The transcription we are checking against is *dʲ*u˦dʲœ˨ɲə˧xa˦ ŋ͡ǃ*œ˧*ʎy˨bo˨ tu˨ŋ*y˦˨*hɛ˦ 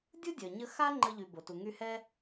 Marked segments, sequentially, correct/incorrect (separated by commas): correct, incorrect, incorrect